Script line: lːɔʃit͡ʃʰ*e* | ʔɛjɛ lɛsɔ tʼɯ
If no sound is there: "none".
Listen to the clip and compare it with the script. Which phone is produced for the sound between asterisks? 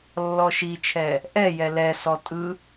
ɛ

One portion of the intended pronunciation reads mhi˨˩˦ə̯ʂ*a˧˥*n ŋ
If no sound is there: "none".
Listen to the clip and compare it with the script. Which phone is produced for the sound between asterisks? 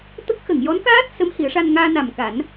a˧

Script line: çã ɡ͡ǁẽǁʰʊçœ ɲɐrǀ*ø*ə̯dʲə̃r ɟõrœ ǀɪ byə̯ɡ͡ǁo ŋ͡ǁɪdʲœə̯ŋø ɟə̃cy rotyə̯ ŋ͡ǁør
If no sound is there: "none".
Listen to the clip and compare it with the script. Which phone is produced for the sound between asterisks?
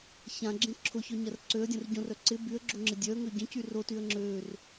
ø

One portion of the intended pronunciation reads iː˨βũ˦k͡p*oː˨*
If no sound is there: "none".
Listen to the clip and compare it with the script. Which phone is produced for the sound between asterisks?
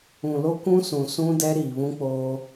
oː˦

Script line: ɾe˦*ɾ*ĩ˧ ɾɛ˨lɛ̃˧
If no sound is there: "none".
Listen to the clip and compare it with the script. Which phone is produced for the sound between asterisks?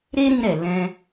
ɾ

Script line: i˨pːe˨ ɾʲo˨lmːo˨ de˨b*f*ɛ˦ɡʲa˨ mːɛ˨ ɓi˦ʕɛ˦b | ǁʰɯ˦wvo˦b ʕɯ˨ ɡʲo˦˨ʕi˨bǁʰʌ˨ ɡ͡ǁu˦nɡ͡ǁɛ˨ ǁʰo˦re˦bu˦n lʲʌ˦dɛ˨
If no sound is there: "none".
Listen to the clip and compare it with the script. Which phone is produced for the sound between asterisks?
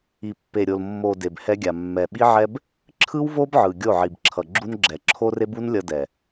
h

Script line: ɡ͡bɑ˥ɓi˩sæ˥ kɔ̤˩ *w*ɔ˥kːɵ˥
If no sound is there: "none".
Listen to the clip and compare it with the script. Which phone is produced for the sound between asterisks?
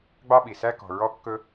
ɹ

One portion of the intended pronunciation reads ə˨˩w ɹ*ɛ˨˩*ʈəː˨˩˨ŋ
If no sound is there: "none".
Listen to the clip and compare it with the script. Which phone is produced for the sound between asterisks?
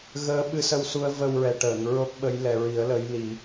ɛ˨˩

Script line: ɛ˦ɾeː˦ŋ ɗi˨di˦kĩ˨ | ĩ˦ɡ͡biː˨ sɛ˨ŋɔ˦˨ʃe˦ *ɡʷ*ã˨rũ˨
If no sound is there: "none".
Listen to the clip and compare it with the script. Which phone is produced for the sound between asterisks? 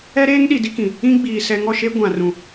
ɡʷ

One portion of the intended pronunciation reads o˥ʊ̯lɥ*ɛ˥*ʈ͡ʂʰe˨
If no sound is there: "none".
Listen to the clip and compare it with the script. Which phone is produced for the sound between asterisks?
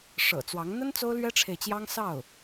ɛ˥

